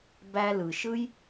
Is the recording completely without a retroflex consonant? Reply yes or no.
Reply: yes